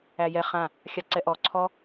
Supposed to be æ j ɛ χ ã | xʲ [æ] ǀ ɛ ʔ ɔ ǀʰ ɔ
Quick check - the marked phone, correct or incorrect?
incorrect